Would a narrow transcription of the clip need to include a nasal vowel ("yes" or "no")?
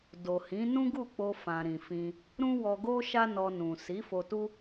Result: yes